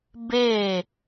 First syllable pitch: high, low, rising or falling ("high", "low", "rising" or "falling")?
falling